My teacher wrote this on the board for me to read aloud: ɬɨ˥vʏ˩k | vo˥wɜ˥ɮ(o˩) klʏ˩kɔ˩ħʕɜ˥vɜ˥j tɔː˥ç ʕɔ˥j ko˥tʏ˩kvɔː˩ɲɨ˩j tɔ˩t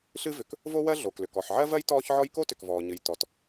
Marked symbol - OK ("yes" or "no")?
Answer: yes